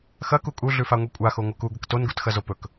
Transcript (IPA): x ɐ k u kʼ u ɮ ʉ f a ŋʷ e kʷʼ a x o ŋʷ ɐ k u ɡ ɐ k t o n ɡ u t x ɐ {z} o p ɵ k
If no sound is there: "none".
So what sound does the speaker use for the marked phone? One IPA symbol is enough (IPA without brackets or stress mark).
z